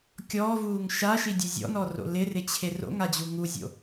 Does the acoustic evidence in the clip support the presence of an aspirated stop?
yes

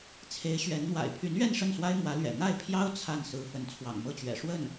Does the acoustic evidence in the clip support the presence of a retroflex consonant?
yes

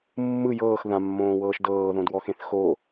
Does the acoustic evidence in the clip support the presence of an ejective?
no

